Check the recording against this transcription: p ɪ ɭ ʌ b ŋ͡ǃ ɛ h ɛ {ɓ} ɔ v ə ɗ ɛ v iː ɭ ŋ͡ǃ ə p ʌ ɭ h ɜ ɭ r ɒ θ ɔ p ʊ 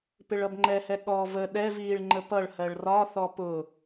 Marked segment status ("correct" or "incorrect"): incorrect